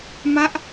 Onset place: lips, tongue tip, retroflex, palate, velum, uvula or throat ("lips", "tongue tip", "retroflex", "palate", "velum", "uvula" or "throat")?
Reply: lips